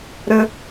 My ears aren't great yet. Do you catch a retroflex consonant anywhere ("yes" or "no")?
no